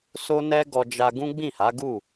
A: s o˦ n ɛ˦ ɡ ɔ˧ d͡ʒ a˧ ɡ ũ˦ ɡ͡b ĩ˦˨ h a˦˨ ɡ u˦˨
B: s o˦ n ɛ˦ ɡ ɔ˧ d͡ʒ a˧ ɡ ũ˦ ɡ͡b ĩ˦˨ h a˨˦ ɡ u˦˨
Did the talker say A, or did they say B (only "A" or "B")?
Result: B